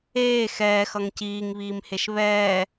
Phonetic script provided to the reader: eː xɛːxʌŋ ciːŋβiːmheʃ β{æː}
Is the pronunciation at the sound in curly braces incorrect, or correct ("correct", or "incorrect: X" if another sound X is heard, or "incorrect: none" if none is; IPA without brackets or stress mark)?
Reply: incorrect: ɛː